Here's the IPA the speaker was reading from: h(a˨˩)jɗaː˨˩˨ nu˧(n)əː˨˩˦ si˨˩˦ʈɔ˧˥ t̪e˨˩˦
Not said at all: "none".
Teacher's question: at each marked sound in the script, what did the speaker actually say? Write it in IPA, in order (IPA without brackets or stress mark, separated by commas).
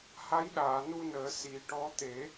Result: a˧˥, n